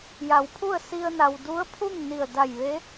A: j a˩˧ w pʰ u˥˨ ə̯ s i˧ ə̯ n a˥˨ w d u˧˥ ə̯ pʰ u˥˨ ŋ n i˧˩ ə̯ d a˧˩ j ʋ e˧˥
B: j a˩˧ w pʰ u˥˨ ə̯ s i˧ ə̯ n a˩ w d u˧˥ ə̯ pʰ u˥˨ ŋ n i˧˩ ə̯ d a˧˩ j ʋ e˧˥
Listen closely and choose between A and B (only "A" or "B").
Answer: B